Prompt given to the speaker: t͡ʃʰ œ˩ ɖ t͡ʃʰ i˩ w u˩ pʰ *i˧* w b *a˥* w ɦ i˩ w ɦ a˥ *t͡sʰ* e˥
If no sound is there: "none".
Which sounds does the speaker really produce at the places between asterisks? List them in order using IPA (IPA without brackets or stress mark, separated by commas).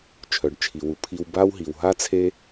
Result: i˧, a˧, t͡sʰ